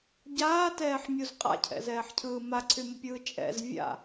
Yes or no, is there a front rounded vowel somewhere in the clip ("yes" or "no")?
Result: yes